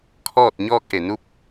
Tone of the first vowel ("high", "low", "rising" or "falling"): falling